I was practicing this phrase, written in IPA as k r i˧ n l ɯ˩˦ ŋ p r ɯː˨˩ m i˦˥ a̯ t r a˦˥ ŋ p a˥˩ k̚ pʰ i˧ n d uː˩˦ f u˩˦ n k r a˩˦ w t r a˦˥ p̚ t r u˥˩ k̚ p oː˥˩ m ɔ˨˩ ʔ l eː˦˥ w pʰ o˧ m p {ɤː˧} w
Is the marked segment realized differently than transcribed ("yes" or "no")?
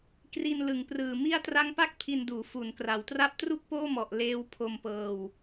no